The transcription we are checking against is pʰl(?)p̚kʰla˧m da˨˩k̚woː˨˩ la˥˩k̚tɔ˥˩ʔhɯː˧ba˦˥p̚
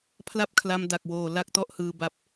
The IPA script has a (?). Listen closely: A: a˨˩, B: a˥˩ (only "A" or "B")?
B